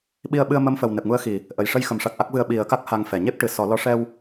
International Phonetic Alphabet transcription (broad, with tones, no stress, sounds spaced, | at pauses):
ɓ i˧ ə̯ ɓ ɨ˧ ə̯ m ə˧˥ m f ə˨˩ w n ɛ˨˩ p̚ ŋ u˧˥ ə̯ x i˨˩˨ | ʔ ə˨˩ j ʂ ə˧ j x ə˨˩ m ʂ a˨˩ k̚ ʔ a˦˥ k̚ v ɨ˧ ə̯ ɓ i˨˩˦ ə̯ k a˦˥ k̚ h a˧ ŋ f ɛ˨˩˨ ɲ e˦˥ p̚ ʈ ɨ˨˩˨ s ɔ˨˩˦ l ɔ˧˥ ʂ ɛ˧ w